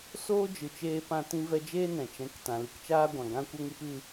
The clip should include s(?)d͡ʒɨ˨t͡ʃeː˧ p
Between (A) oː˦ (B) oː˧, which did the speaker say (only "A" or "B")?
A